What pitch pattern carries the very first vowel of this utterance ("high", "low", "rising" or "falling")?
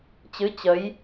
rising